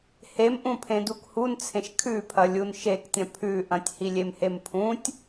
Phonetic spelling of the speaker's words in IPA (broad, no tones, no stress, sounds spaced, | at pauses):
h e m ʔ ũ pʰ ẽ d u k h u n t͡sʰ ẽ ʃ kʰ ʉ pʰ ɐ lʲ u n ʃ e k tʲ ɐ̃ pʰ ʉ ʔ ɐ̃ tʲ h i lʲ e m h e m pʰ ũ tʲ